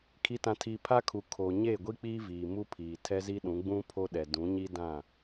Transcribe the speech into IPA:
kʰ i˨ t ã˨ tʰ iː˨ pʰ a˦ kʰ u˨ kʰ o˨ ɲ eː˦˨ ɡʷ i˦ k͡p iː˦ v iː˨ m u˦ pʰ iː˨ tʰ ɛ˦ z i˦ ɗ ũ˨˦ ɡ͡b ũ˦ pʰ o˦ ɗ ɛ˨ d ũ˨˦ ɲ i˦ d ã˦˨

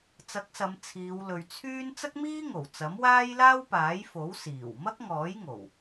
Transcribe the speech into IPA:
t͡s ɐ˨˥ k̚ s ɐ˨˧ m t͡sʰ iː˨˧ w l ɵ˨ ɥ t͡sʰ yː˥ n t͡s ɐ˥ k̚ m iː˥ ŋ o˨˩ w t͡s ɐ˨˥ m w aː˥ j l aː˥ w p aː˨˥ j f o˨˥ w s iː˨˩ w m ɐ˥ k̚ ŋ ɔː˨˥ j ŋ o˨˩ w

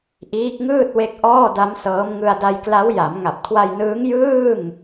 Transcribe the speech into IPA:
ʔ iː˦˥ k̚ ŋ ɯː˥˩ t̚ w e˦˥ k̚ ʔ ɔː˥˩ d a˦˥ m s ɤː˦˥ m ŋ ɯ˧ a̯ d a˧ j k l a˦˥ w j a˩˦ m ŋ a˨˩ p̚ kʰ w a˧ j n ɯː˦˥ ŋ j ɯː˥˩ ŋ

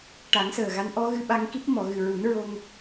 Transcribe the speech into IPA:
ʈ a˨˩˦ ŋ s əː˨˩ ɣ a˧˥ n ʔ ɔ˧˥ ɣ ɨ˧ ɓ a˧ ŋ k i˦˥ p̚ m ɔ˨˩˨ ɣ ɨ˨˩ ɹ u˨˩˦ n ɹ o˧ ŋ

